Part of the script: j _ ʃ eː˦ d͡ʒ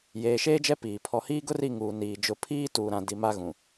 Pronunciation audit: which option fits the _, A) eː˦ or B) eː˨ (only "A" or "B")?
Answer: B